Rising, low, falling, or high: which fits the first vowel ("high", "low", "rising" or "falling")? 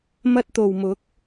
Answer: high